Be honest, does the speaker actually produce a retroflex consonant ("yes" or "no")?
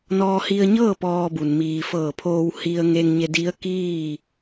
no